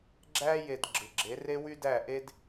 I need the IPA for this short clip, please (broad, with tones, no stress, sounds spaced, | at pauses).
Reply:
ɡ͡ǁ æ˥ j e˧ d ɡ͡ǁ ɯ˩ ɡ͡ǁ e˩˥ r e˥ w y˥ d æ˥˩ ʔ e˥ d